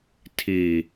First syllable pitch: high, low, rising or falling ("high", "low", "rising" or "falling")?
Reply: low